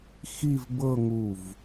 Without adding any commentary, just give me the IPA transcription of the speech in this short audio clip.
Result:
x i˥˧ v b ɤ˥˧ ŋ u˧˩ v

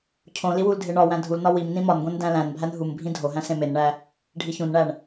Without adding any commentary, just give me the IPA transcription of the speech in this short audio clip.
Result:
cʰ õ l i w u l dʱ e ɳ ɒ w æ̃ dʱ u l n ɒ w i m n ĩ m ɒ n ɡʷ ẽ n d æ̃ l æ̃ n bʱ æ n ɦ u m bʱ ĩ dʱ o ɦ æ̃ s ẽ m e n ɳ æ | ɖʱ i ç ũ n ɳ æ ɳ

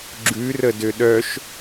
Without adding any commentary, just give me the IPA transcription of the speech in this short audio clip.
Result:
ɡ͡ǁ ʉ r ə d ø ɗ œ ʃ

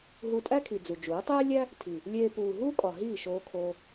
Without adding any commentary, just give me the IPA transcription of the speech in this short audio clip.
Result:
ɦ u˧ tʼ æ˦ kʰ i˨ d͡z u˨ d͡ʒ uː˨˦ tˤ eː˦ lʲ æ˦ | tʰ i˨ | lʲ eː˧ p uː˨ ɦ u˦ kʼ ɒ˨ ɦ iː˦˨ ʃ oː˧ kʰ oː˧

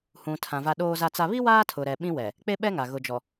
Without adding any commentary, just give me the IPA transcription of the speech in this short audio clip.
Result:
h ũ˨ tʰ ã˨ v a˦ ɗ oː˦ z a˦ t͡s a˦ β i˦ w aː˦ tʰ ʊ˨ ɾ ɛ˨ ɓ ĩ˦ w ɛ˨ | k͡p e˦ ɓ ɛ˦ ŋ a˨ ɣ ʊ˨ d͡ʒ ɔ˨

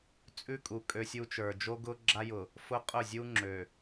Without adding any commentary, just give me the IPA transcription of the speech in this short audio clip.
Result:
t͡sʼ ʉ˦ kʼ u˨ kʼ ø˦ sʲ u˦ t͡ʃ ə˞˨ d͡ʒ o˦ ɡ ʊ˦ ɡ͡ǁ a˦ j ʊ˨ | f ʊ˦ qʼ ʊ˦˨ zʲ u˦ ŋ͡ǁ ø˨

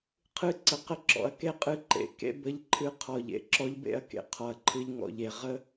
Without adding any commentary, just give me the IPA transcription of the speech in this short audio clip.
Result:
qʰ ɨ˧ ǀ ə˨ q ə˧ ǁ ɔ̰˨ ɐ̯ k e˦ qʼ ɨ˧ ǃ ḛ˨ k ḛ˦ b ə˧ ʎ ǃʰ ɨ˧ qʰ ɔ˨ ʎ ḛ˦ ǁ ɔ˦ ʎ b ḛ˧ ɐ̯ k ḛ˨ qʰ ɔ˨ ɐ̯ ǃʰ ɨ˧ ʎ ŋ ɔ̰˧ ʎ e˨ ʁ ə˦

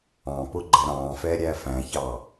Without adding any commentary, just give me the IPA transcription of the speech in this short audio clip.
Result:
ɑ̃ p ʊ ɡ͡ǃ ɛ ɾ ɑ̃ː f ɛ ɾʲ æ f æ̃ ç ɑ

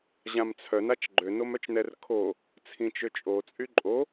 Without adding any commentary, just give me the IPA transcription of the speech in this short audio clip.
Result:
ʑ ã m t͡sʰ œ n a t͡ʃ ɡ͡ǃ ø n o m œ t͡ʃ n ɛ r kʰ o | t͡sʰ ĩ t͡ʃ ø t͡ʃʼ o t͡sʼ y ǃʼ o

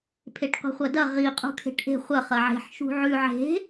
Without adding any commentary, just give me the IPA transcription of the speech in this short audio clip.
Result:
pʰ e ʈ qʷ i̤ χʷ ɐ d ɐ ʁ i qʼ ṳ kʰ e̤ ʈ ʔ e̤ χʷ ɐ χ ɐ ʕ e̤ ħ ʃ ṳ ʕ ʉ ʕ e̤

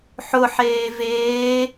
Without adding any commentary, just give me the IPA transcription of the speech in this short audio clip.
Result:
ħ ʊ ħ eː v eː

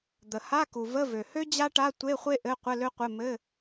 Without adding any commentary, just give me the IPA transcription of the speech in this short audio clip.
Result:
d̪ ə˩ h a˧˥˧ k u˩ v ə˧˥˧ v ø˩ h ø˥ d͡ʑ a˥ ʈ a˧˥˧ tʷ e˧˥˧ χʷ e˥ ʔ ɘ˧˥˧ qʷ ɘ˧˥˧ l ø˥ qʷ ɘ˧˥˧ m ɘ˧˥˧

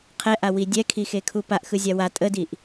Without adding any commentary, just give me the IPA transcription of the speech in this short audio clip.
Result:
qʰ ɛ ʔ a w i dʲ ɛ kʰ i x e kʰ u p a ʔ x ɯ zʲ a w a tʼ ə d i ʔ

